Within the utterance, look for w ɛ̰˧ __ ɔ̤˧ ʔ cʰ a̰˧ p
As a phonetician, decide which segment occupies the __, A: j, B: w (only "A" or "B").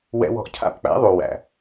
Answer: B